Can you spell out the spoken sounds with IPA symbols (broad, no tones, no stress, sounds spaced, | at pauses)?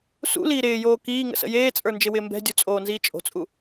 s ṵ l iː ɾ ɪː j oː k iː ŋ ə̰ s ə̰ j eː t͡sʼ ə˞ n d͡ʒ ɪ w ɪː m b ɛ̤ dʲ u t͡sʼ oː n z iː t͡ʃʼ o̤ t͡sʼ u